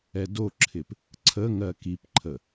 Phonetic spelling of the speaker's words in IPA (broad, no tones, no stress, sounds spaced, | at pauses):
ɛ d o ǁʰ ɪ p | ǀʰ ə ŋ ɜ k i p ǃʰ ə